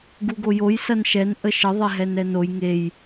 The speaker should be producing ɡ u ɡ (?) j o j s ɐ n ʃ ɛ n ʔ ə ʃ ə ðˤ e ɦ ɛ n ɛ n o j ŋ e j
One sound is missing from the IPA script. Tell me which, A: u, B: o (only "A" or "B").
B